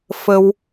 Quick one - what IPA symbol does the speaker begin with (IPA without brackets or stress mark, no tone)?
f